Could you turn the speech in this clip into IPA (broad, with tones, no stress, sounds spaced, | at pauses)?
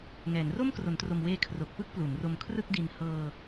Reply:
ŋ ɛː˩˦ n r o˥˩ m k r o˩˦ n t r o˨˩ m w eː˧ kʰ r o˨˩ k̚ p ɯ˥˩ k̚ p l u˩˦ n r o˧ m kʰ r ɯ˥˩ k̚ d i˧ n h ɤː˧